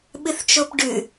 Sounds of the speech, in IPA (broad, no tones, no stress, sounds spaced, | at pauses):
ɓ ɨ θ t͡ʃ o p ɖ ʉ